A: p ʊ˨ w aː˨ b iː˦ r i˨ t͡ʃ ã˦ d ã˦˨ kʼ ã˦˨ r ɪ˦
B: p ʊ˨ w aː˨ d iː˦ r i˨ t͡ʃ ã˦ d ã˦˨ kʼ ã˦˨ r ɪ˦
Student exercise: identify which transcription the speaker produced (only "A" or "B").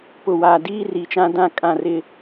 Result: B